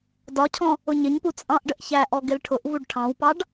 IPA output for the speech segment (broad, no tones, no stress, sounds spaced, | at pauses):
d ɒ cʰ ɔ̃ | ʊ ɲ ɪ ɲ p u t͡sʼ ɑ̃ ʔ ɖ ə ʔ ç æ ʔ ɔ ɡ ɪ l ʈʰ ʊ ʔ v u ɖ ʈʰ ɑ̃ w p ɑ ɖ